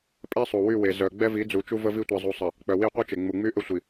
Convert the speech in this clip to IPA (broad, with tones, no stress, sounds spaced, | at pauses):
pʼ ɛ˦ sˤ u˨ w y˦˨ w e˨ z œ˨ ɡ͡b ɛ˦ v i˨˦ d͡z u˨ t͡ʃ u˦ v ə˦ v i˦ tʷ e˨ zˤ u˨ sˤ ə˨ | k͡p œ˨ w i˦˨ qʷ œ˦ t͡ʃ e˨ ŋ͡m u˨ ŋ͡m y˦ ʔ ə˦ sʷ i˨